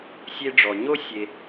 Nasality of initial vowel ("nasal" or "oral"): oral